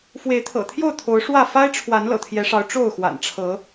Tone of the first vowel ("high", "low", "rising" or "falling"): rising